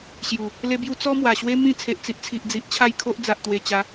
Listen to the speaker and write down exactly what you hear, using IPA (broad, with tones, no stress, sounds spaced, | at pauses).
ɕ j u˨˩ | l e˦ b j u˦ t͡s ɔ˦ m w a˨˩ ɕ w e˦ m ĩ˥˧ t͡sʰ e˨ ʔ t͡s i˨ ʔ t͡sʰ i˨ ʔ d͡z i˨ ʔ t͡ɕʰ a˥˧ j kʰ o˦ ʔ d͡z a˨ ʔ t̪ w e˨˩ t͡ɕ a˨˦